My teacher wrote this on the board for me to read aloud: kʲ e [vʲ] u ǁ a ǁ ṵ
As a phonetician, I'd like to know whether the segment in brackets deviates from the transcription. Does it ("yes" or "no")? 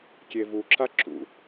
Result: yes